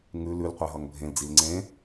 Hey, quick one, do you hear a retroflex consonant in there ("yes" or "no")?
no